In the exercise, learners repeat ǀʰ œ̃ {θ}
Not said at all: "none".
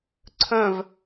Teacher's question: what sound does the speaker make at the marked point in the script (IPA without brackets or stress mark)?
v